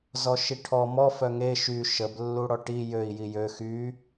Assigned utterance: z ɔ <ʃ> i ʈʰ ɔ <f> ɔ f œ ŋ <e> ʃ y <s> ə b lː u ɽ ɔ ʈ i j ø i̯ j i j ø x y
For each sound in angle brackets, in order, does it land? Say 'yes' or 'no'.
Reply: yes, no, yes, no

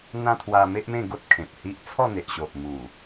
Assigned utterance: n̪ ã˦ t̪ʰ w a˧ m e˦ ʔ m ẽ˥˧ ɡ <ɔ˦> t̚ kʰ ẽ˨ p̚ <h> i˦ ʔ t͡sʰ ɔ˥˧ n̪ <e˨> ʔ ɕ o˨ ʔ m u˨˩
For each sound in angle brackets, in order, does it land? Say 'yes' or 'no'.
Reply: no, yes, yes

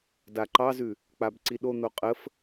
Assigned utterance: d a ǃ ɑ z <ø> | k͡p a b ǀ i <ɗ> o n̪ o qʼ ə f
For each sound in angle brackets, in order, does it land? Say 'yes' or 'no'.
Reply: no, yes

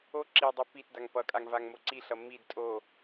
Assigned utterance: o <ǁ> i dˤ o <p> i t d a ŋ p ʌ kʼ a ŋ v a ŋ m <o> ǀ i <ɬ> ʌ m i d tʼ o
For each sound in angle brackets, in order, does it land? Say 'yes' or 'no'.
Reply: yes, yes, yes, yes

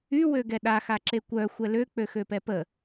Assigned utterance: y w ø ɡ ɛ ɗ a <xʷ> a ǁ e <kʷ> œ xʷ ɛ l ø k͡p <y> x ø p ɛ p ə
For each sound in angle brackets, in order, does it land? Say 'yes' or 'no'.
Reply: no, yes, no

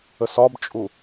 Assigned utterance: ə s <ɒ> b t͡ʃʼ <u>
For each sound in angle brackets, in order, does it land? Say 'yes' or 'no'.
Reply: yes, yes

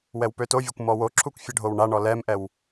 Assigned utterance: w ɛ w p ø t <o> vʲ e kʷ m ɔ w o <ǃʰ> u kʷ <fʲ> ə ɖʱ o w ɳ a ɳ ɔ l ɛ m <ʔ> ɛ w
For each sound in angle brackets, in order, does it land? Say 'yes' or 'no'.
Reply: yes, no, yes, yes

